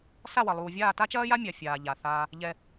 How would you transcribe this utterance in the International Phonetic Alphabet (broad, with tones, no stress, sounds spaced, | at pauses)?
s a˦˨ w ɐ˨ lˠ uː˨ vʲ aː˦˨ t a˦ t͡ʃ ɐː˦ j a˦ mʲ a˨ fʲ aː˨ ʎ a˨ θ aː˦ | ʎ ɛ˦